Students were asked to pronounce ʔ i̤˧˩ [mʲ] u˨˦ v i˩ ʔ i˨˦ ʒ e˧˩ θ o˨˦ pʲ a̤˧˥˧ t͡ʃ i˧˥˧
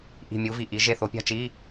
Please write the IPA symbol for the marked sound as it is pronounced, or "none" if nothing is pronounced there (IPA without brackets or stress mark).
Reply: mʲ